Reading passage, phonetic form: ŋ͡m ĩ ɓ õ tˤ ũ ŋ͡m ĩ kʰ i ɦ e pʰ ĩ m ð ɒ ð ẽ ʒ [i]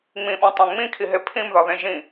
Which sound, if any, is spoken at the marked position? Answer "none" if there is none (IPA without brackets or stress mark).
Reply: ĩ